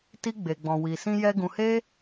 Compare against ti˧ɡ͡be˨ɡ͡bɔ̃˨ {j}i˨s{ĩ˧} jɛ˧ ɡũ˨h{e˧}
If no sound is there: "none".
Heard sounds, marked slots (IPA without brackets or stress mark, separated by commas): w, ĩ˧, e˧